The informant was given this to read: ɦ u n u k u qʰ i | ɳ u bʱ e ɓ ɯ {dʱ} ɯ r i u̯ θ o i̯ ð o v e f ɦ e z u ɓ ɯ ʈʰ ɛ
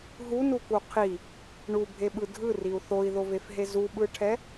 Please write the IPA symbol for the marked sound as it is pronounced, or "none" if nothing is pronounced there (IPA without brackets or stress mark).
dʱ